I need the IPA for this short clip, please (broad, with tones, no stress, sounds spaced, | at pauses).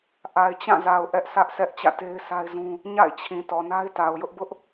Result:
ʔ a˨ ɪ̯ t͡ɕ ã˦˨ z a˨ ʊ̯ ʔ ɛ˦ ʔ sʰ ä˦ ʔ sʰ ɛ˦ ʔ t͡ɕ ä̰˦˨ t e˦ ɪ̯ s a˦ ɪ̯ z ũ˦ | ɲ a̰˦˨ ɪ̯ t͡ɕʰ ĩ˨ t ɔ˨ n a˦ ɪ̯ t a˨ ʊ̯ j ʊ˦ ʔ b ʊ˦ ʔ